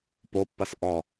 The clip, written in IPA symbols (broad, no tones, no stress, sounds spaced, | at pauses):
p o pː ɐ s ʔ ɔ